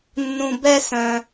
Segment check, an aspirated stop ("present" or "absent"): absent